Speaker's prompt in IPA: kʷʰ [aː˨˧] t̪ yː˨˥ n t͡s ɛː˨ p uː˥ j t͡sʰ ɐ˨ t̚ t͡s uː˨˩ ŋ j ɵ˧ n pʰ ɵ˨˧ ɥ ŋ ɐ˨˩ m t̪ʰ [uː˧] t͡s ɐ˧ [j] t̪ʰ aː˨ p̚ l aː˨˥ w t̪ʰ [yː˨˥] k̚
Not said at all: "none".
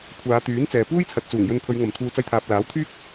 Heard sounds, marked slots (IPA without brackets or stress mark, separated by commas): aː˨˧, uː˨, j, yː˥